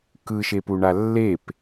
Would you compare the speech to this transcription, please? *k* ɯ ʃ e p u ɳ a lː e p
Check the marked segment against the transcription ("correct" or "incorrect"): correct